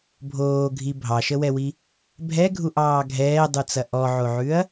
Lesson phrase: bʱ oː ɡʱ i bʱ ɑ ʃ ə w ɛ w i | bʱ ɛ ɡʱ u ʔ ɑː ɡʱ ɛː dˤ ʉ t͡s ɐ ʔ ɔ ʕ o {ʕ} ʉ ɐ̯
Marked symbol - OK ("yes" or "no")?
yes